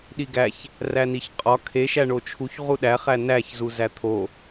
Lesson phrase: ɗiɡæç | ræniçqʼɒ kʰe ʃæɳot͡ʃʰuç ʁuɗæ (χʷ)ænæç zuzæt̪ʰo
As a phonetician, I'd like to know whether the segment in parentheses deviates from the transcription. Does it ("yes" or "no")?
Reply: yes